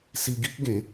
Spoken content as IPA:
s i˧ ɡ i˦ k̚ ɡ ẽ˨˦

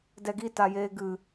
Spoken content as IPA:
d ɛ ɡ i t a j eː ɡ ɨ

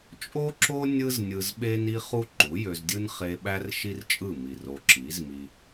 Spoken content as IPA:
t͡ʃʼ o˦ ǁ o˦ nʲ ɯ˦ z nʲ ɯ˧ z ɓ e˦ n i˦ χ u˦ ǃ u˨˦ j ø˧ z dʲ ɯ˦ n χ e˧ ɓ æ˦ r ʃ i˦ r t͡ʃʼ ɯ˦˨ m i˨ r o˧ ǁ i˨˦ z m i˦

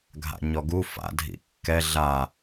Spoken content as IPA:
ɡʱ a̰ ɲ ɔ ɡ u f a̰ dʱ ḭ kː ɛ ɮ a

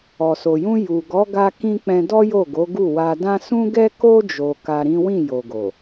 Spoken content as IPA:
ɔ˨ s o˨ j ũ˧ j u˨ ɡ ɔ˨˦ ɡ a˧ k ĩ˧ k͡p ɛ̃˧ d ɔ˦ j o˦˨ ɡ o˨˦ ɡ u˦˨ w a˧ d ã˦ s ũ˦ ɡ ɛ˦ k o˦ d͡ʒ o˧ k a˧ ɾ ĩ˦ w ĩ˦˨ j o˨ ɡ o˨

